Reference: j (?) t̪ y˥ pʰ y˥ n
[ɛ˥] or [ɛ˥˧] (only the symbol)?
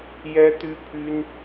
ɛ˥